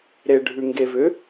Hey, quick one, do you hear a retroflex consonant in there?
yes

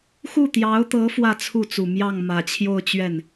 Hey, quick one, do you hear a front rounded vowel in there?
no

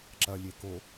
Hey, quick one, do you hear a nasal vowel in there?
no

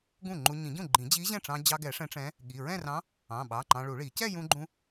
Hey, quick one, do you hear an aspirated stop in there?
no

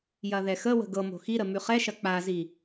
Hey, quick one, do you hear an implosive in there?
no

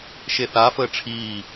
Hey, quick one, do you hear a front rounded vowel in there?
no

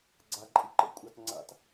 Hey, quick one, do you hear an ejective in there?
yes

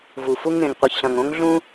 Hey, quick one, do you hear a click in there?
no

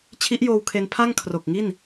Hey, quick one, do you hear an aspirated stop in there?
yes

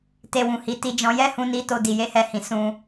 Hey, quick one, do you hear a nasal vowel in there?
yes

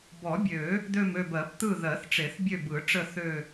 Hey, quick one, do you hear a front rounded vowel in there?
yes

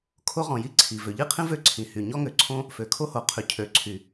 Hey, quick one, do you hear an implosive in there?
no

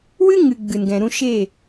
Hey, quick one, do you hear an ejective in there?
no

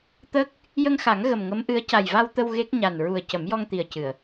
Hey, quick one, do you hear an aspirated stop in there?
no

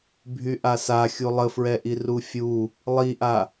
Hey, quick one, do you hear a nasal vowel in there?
no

